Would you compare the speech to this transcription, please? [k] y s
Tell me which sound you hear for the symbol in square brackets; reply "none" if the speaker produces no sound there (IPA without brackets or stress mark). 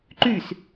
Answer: ǃ